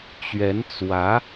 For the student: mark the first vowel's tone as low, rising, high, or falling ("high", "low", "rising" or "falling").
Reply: rising